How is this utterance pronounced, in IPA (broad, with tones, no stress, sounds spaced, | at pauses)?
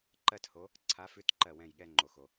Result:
ǃ ɜ˥ t h o˧˥ | ǀʰ a˧˥ f ʉ˧˥ t ǃ ɜ˥˨ w ɛ̃˥˨ j ɠ ɛ˥ ŋ͡ǃ o˨ x o˨